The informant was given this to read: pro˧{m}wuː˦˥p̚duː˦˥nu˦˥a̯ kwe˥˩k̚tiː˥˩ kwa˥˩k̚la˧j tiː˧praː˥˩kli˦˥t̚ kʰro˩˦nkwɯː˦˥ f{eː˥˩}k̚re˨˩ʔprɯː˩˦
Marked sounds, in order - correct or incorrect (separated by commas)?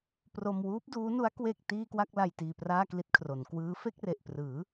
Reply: correct, incorrect